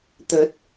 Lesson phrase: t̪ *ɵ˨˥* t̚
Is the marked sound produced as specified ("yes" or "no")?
yes